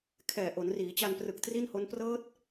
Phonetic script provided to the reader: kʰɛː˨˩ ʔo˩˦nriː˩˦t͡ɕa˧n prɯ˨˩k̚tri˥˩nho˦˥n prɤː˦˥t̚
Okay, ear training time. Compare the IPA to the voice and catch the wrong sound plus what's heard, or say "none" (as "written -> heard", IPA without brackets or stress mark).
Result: none